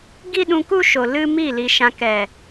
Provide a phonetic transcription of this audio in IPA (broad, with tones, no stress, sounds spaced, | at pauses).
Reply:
ɡ i˦ ɗ ũ˧ k u˦ ʃ o˨ l ɨ˦ m i˦˨ l i˧ ʃ ã˧ k ɛ˨